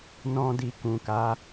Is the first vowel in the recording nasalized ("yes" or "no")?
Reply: yes